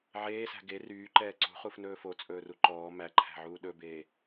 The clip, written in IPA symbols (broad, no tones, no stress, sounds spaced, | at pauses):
ʕ eː s æ̤ ɡ e r yː ǃ ɛː ǀ ṳ χ u f n ɵː f o t͡sʼ ɵː r u ǃ ɔː m æ ǃʰ æ̤ ʕ uː ɗ ɵ b eː